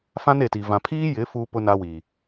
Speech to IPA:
f ã˦ n e˨ t i˨ v ã˨ pʰ iː˦ j ɪ˨˦ f uː˦ p ʊ˦ n a˦ w i˨

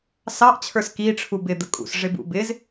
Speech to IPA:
s ɑ ʔ t͡ɕʰ ə˞ s k i ʈ͡ʂʰ u b ɪ d̪ ə kʼ ṵ s ʐ ɪ b ṵ b ɪ z

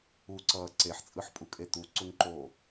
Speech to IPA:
u ǀ ʌː ǀ e ħ t͡sʼ ɯ ħ pʼ u kʼ e t̪ u ǀ u ŋ ǃ oː

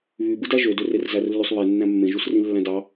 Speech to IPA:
β y b ɯ d æ ʒ ø d ø r e r z æ r lː y sˤ β e nː æ̃ mː ẽ ʒ u s r ĩ lː æ̃ d ɑ

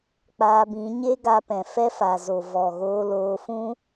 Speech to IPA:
k͡p aː˧ b ĩ˨˦ ɲ e˦ ɡ a˧ p ɛ̃˨ f ɛ˦ f a˨ z o˨ v ɔ˨ ɣ oː˧ l oː˧ f ũ˦

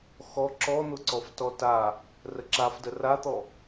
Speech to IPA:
x ɔ ǁ ɔ n̪ ʊ ǀ ɔ f t ɔ t a | r ə ǁ a f d ə r a t̪ ɔ

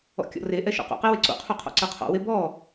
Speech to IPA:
ɔ̰ kʲ ɔ̰ r e ʔ ɛ ʃ o̰ q o̰ q i w e ǀ o̰ qʰ u qʰ ɔ̰ ǀ ɜ qʰ ɔ̰ w e b ɔ

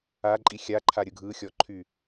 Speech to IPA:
a ǃʼ i xʲ a ǃʰ a ɾʲ ɯ ɡʱ ɯ xʲ ɔ ǃʰ y

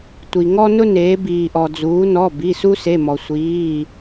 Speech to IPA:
tʷ i˩ ŋ ɔ˦ n ʊ˦ n eː˩˧ b iː˩ ʔ ɔ˩ d͡z uː˩˧ n ɔ˩˧˩ b i˩˧˩ s u˦ s e˩˧˩ m ɔ˩ sʷ iː˩˧˩

